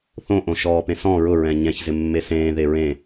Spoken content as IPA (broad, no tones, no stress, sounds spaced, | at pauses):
θ õ ʔ õ ʃ ɔː p ẽ s ɔ̃ ɹ ʊ ɹ ɛ̃ ɲ ɛ̃ ç z ɪ mː e s ẽː ð e ɹ ẽ